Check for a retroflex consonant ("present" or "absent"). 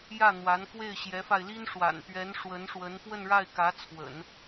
present